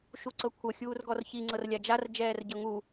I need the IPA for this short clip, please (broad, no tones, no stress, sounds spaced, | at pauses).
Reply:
ʃ u ǀ ɤ kʷʰ ɤ xʲ uː r ɡ ɔ r ç i ŋ͡ǀ ɤ r lʲ a d͡ʒ a r d͡ʒ ɛː r ɟ ɤ ŋ u